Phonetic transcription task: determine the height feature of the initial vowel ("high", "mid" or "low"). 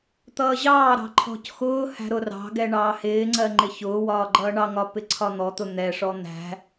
mid